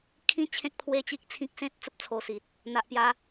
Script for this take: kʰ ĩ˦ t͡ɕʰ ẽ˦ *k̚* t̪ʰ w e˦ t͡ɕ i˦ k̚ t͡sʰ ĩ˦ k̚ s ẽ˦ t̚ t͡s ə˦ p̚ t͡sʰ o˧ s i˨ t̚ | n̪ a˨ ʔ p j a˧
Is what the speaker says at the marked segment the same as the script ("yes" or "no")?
yes